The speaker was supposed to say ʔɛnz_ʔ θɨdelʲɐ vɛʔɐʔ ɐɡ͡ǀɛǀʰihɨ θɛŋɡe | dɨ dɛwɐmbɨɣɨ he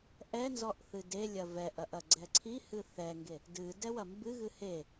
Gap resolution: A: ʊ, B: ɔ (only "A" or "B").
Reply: B